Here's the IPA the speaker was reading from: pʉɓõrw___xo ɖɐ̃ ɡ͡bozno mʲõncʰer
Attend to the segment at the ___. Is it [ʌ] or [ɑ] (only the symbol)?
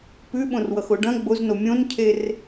ʌ